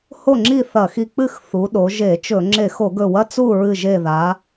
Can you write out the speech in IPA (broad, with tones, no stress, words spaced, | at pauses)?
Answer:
ho˥˨ŋ͡ǁi˥˨ θɐ˧˩˧xi˧˩ k͡pɨ˥˨x θu˩˧ɗo˩˧ʒe˧˩˧t͡ʃɵ˧˩˧ ŋ͡ǁe˧˩˧xo˧˩˧ɡɵ˧˩˧wɐ˧˥˧ t͡su˥˨ ɹɨ˧˩ʒe˧˩ða˩˧